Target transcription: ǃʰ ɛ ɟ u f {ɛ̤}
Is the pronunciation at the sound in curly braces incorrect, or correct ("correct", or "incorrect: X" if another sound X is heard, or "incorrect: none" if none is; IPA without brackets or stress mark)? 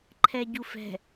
correct